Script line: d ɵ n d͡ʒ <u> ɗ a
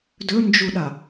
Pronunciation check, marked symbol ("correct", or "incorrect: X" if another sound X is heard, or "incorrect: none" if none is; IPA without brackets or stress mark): correct